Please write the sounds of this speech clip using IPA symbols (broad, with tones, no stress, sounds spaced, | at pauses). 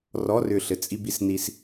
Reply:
r ɔ˧˥˧ r ʏ˧˩ ɬ ɘ˧ t͡sʼ i˧ b i˧ s n i˧ s